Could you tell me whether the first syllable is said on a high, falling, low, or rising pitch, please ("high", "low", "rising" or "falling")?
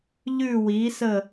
falling